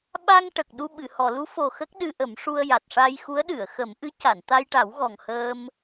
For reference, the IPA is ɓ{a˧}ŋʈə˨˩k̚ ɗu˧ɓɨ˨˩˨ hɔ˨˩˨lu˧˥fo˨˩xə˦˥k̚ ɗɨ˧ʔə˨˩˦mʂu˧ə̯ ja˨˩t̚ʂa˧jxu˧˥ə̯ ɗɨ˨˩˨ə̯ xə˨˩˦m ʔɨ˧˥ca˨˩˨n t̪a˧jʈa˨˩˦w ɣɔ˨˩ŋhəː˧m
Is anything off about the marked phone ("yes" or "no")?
no